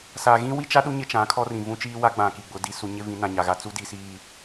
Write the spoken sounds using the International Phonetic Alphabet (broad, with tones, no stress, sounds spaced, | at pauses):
s a˨ ɣ ĩ˦ w i˦ t͡ʃ a˦ ɗ u˦ ɲ ɪ˦ t͡ʃ ã˨˦ kʰ ɔ˦ r ĩ˨ v ũ˦ t͡ʃ iː˦ w a˦ ɡ͡b ã˨ k i˨ ɡ͡b ʊ˨˦ d i˦ s u˦ ɲ ɪ˦ v ĩ˨˦ n ã˨ ɲ a˨ ɣ a˦ t͡s u˦ d i˨ s iː˨